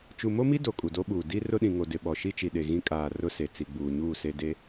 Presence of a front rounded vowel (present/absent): absent